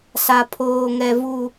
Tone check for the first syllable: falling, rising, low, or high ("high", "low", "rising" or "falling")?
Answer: low